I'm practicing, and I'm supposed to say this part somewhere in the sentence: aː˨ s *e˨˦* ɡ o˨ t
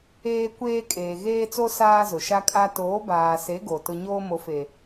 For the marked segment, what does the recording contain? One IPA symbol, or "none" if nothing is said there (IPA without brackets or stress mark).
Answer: e˨˦